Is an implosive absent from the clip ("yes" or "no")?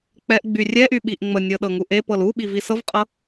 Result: no